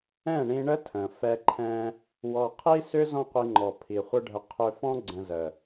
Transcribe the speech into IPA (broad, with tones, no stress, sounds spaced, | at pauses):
ɛ̃˦˨ ɳ ĩ˧ ɳ ə˦ tʰ ə̃˨ f ɛ˧ ǃʰ ɛ̃˧ | w ɔ˨ qʰ i˦ s ʏ˦ z ɔ̃˦ qʷ i˧ ŋ͡ǃ ɔ˨ pʰ i˨ χʷ ə˦ ɖʱ ə˧ qʰ ʏ˧ f ɔ̃˦ ɡ͡ǀ ə̃˧ z ə˨